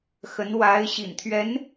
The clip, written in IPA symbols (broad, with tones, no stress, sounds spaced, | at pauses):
x ə˧˥ n w a˧˥ ɪ̯ ɕ ḭ˨˩ n t̪ʰ ɥ ɛ˧˥ n